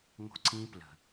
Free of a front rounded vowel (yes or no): yes